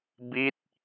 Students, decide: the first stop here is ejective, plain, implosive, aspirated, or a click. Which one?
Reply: plain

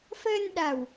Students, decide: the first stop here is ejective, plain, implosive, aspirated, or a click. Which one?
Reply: implosive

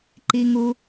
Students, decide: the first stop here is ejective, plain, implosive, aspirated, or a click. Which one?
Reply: click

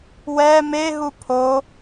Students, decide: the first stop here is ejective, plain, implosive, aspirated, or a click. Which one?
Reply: aspirated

